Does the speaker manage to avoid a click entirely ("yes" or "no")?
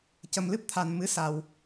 yes